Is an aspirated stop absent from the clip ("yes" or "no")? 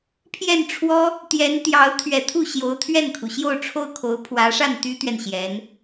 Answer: no